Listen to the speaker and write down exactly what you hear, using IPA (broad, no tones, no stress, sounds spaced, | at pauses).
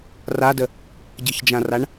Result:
r a d ə | ɟ ə̤ ç d͡ʒ ã r a ɳ